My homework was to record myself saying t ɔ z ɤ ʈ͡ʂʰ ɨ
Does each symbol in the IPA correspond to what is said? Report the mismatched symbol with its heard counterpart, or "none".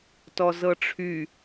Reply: ɨ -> y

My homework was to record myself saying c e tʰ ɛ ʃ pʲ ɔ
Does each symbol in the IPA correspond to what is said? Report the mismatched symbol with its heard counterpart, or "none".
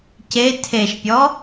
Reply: ɛ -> e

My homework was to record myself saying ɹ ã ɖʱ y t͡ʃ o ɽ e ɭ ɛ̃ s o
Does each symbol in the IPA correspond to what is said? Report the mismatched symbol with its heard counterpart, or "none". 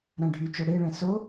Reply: ɹ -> ɾ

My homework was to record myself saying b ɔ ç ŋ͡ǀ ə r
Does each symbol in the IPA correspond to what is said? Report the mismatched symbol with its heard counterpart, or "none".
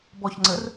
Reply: none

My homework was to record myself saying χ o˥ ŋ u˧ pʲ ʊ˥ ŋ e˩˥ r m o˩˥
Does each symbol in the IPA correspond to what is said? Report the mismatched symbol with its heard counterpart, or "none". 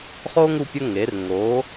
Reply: m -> ŋ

